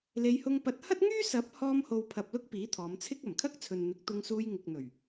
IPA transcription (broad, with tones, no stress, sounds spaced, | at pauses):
l e˨˧ j h ʊ˧ ŋ p ɐ˨˥ t̚ h ɐ˥ t̚ ŋ yː˥ s ɐ˨˥ p̚ h ɔː˧ m h o˨ w pʰ ɐ˨ p̚ l ʊ˥ k̚ p iː˨˥ t̪ʰ ɔː˨˧ m t͡sʰ ɪ˥ k̚ ɐ˨˩ m kʰ ɐ˥ k̚ t͡sʰ ɵ˨ n n̪ ɪ˨˥ k̚ t̪ ʊ˧ ŋ s uː˧ j ŋ ɪ˨ k̚ n̪ ɵ˨˩ ɥ